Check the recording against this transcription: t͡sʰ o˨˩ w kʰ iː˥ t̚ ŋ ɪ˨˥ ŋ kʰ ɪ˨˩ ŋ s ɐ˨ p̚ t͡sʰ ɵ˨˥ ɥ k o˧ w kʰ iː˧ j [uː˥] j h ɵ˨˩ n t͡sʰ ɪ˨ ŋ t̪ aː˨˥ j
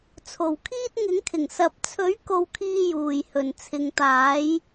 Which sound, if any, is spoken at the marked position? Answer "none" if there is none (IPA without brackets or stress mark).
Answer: uː˨˩